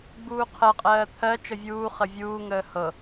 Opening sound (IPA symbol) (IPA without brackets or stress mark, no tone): ɡ͡b